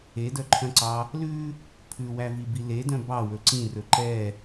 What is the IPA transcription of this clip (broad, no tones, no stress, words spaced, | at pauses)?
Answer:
edœǃʰœ̃ǀɑ | lʉ | pʰʉwævibi ledœ̃ bɑwɵ ǀĩrɵ ǃɛ